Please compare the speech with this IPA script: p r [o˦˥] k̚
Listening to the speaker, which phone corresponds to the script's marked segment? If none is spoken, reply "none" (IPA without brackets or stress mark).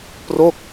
o˥˩